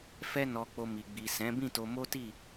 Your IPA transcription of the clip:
fɛ˦nɔ˧ k͡po˧mi˨ɡ͡bi˨ sɛ̃˨˦ bĩ˦˨to˧mo˦ti˦˨

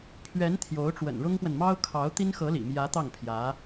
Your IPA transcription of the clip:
pʰɥɛ˧˥n t̪ʰjo˧˥ʊ̯ʈ͡ʂwə̰˨˩nɻʊ˥ŋpwə˨n mɑ˥ʊ̯kʰɑ˧˥ʊ̯ t̪i˥nxɤ˧˥lḭ˨˩mjä˧˥ t̪ɑ˥˩ŋpʰjä˧˥

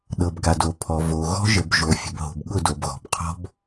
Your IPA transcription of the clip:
ɗɤ˨bɡa˨do˨ pʰɔ˨vo˨ ɣɔ̤˦ʒə˨bʒo˨ fʲə̤˨bɦo̤˨bɠʊ˦˨ do˨bɣɔ̤˨b qʰɔ̤˦b

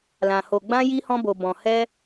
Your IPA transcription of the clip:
lã˧ho˧ɡ͡bã˦ ji˦hɔ̃˦bo˧bɔ̃˧ hɛ˦

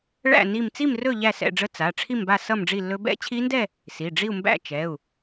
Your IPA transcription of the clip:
ɭæ̰˥˧ ni˥˧m t͡si˥˧mrɵ˥˧ ʎæ˥˧sɛ̰˥˧ɖ͡ʐə˦˥ t͡sa˩˧˩ ʈ͡ʂʰi˥˧mba˥˧ sʌ˥˧mɖ͡ʐi˥˧lːɵ˦˥ bɛ̰˦˥t͡ɕʰi˦˥ndɛ˥˧ | si˩˧˩ɖ͡ʐi˥˧u̯ mbæ̰˥˧t͡ʃɛ˩˧˩u̯

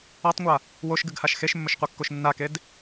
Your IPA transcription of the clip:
atˤŋʷa | woʃɡɨɡhaʃ xeʃmːɵʃqʷakːoʃ nːaked

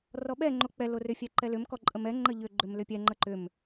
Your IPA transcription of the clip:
rɔɓɛ ŋ͡ǃok͡pɛ lorʏ fʲɛǃɛlʏm kɔǃʼəmɛ ŋ͡ǃəʎʏ ɡ͡ǃʏmlʏpʲɛ ŋ͡ǃəǃʏm

